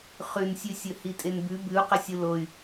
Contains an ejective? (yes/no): yes